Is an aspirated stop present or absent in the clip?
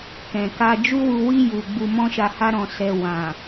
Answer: absent